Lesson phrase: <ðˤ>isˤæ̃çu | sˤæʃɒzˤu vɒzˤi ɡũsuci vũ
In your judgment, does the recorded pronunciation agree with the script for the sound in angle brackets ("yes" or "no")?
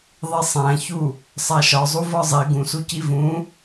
yes